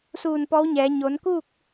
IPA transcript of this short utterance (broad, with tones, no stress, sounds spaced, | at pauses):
s uː˧˩ n p ɔː˧˥ w ɲ ɛː˩˧ ɲ oː˩˧ n k uː˥˨ k̚